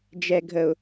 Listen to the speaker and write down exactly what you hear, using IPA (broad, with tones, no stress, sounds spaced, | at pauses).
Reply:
d͡ʒ ɛ˨ ɡʱ ə˨ ʊ̯